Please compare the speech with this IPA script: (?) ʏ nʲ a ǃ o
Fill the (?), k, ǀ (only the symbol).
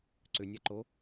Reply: ǀ